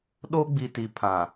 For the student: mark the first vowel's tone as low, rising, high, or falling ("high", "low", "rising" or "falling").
high